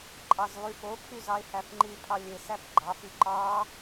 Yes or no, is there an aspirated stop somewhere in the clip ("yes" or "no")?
yes